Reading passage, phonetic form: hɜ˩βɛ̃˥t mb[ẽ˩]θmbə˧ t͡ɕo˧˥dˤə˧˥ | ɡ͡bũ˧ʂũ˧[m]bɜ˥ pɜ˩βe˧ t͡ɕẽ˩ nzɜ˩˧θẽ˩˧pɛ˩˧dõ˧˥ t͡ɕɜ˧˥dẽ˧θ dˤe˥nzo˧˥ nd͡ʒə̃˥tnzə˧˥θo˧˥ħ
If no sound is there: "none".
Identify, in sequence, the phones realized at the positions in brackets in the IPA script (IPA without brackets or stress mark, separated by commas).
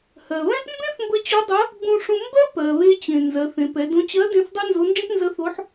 ẽ˥, m